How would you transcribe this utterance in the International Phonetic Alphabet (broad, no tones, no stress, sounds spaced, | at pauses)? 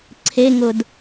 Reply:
ǀʰ e ŋ ʊ d